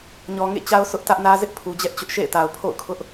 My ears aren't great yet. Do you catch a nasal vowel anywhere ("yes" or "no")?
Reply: no